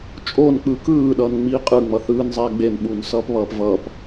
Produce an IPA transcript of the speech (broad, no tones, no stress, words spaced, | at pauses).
t͡ʃʼonk͡pɯ kɯːɗʌːnŋ͡miː qʼɯŋ͡mʌ θɯːnzˤɛː ɡ͡benɓuːnsʌːpβʌːp vʌːp